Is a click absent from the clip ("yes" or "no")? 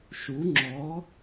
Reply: no